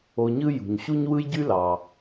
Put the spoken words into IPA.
o˨ ɲ ɯ˦ j ṳ˩ ɲ ɕ u˦ ɲ w ɯ˦ j ɟ y˦ l ɑ˩

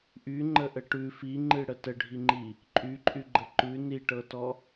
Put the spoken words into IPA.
ʔ y ŋ͡ǃ ə ʔ ə ʈ ʉ f i ŋ͡ǃ ɨ ɽ ə t ə ɖʱ i ŋ͡ǃ i | ǃʼ y ǃʼ y ɡ͡ǃ ə ǃ ʉ n i ʈ ɤ t ɔ

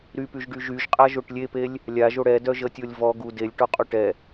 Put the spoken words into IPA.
ɾ y p y ʒ ɖ y ʒ y ʒ qʼ a ʒ o ʈ lʲ e p e lʲ | lʲ a ʒ o ɽ ɛ d œ ʒ ə tʲ o lʲ v ɔ ɡ u d e lʲ ʈ ɔ qʼ o ʈ ɛ

